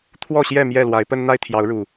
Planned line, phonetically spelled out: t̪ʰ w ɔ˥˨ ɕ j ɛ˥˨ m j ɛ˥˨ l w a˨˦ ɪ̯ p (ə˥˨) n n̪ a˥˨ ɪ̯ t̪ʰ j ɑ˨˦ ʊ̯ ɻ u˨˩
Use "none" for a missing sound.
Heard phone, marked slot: ə˦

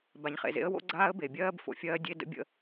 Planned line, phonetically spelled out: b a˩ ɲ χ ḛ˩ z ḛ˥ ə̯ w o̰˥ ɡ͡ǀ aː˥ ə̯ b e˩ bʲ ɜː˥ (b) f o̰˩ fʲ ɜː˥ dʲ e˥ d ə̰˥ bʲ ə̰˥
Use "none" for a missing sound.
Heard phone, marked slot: b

